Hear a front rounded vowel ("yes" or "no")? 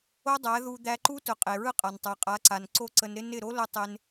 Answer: no